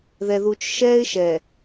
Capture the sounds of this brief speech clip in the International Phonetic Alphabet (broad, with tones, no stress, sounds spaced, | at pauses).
ð ɛ˨ ð u˨ t͡ʃ ʃ ɛː˦ ɪ̯ ʃ ɛ˨